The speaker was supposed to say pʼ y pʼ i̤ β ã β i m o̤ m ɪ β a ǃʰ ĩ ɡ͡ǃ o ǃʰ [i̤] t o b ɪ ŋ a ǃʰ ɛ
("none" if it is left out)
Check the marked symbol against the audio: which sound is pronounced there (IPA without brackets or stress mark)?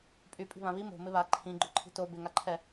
i̤